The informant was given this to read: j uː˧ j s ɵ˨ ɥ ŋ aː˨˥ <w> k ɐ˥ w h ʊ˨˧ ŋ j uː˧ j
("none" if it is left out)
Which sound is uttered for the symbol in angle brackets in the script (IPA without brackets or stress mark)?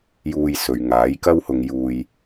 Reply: j